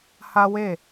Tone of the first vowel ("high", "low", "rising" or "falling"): high